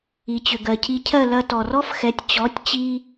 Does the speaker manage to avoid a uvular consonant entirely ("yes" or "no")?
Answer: yes